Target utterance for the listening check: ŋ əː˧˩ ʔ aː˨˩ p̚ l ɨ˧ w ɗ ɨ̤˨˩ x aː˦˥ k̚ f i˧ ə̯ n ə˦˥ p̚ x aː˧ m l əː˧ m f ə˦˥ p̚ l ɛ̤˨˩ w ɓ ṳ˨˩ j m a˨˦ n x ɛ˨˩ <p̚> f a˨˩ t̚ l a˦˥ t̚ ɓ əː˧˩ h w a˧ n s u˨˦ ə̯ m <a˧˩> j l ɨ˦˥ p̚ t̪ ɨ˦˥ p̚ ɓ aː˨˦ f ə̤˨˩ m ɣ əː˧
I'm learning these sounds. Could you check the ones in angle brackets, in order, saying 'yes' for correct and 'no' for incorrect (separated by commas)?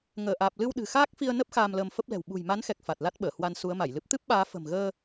no, yes